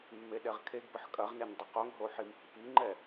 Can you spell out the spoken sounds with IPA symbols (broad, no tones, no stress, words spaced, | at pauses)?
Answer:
mːeɗɛʁkʰeɡbəħ kʼɐʁnen dˤəqoŋɦo ħimpːiŋ͡ǃɛ